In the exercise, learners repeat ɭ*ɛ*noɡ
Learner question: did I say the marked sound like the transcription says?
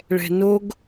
no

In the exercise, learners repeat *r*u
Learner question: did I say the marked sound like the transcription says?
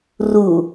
yes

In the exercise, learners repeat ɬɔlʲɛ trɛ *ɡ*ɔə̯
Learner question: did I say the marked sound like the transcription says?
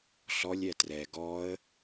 yes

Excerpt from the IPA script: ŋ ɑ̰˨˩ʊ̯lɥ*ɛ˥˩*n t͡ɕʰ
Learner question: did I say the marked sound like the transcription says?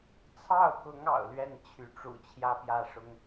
yes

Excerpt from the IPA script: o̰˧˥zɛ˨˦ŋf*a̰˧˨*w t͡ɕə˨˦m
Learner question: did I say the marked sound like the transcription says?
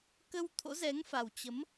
no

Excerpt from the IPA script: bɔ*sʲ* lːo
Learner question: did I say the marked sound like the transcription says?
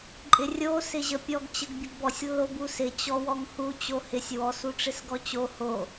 yes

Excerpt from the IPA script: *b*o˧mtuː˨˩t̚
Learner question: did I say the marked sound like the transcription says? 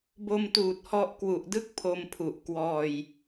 yes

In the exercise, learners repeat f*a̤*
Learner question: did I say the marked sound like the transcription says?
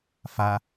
no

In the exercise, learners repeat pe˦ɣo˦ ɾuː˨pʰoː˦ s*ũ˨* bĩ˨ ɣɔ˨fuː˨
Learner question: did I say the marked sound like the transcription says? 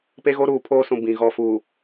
yes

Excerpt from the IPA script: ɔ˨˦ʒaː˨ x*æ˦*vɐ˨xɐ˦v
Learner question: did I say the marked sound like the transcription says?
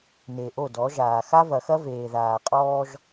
no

